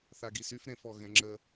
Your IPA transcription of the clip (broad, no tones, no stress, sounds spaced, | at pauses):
θ a ɡ i s y f ɾ ẽ f ɔ ɣ ɛ̃ ŋ͡ǁ ə